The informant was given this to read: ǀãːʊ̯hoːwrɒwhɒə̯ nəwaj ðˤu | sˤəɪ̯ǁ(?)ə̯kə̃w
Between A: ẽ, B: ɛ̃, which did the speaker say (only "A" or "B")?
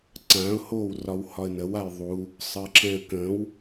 B